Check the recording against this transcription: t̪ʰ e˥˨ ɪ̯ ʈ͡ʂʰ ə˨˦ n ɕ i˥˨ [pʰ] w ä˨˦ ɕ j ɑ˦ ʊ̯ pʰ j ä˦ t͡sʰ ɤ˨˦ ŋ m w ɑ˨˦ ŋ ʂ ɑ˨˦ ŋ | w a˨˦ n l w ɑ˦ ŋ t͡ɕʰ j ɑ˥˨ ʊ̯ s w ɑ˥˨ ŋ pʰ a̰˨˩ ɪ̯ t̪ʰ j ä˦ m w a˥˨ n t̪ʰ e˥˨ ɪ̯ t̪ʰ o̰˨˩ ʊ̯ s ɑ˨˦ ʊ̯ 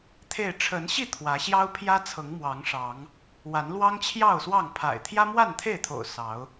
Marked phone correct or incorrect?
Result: incorrect